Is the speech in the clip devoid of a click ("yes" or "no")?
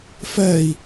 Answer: yes